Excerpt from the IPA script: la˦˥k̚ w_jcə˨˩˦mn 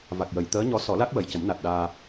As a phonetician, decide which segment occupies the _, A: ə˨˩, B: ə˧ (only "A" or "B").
A